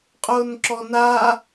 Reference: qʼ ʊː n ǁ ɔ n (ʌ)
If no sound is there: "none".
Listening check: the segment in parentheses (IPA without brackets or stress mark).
a